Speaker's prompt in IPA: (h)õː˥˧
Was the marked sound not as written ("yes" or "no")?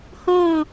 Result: no